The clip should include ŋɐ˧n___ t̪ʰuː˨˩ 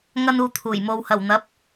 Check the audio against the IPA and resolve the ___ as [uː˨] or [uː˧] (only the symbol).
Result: uː˨